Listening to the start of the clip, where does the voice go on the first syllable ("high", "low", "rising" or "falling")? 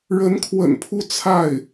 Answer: rising